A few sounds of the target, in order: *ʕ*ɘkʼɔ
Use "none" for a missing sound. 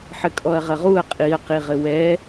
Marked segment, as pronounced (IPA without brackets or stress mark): ħ